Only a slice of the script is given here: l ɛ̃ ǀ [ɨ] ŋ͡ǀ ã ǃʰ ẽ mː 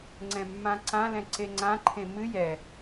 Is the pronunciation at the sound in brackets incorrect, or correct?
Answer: incorrect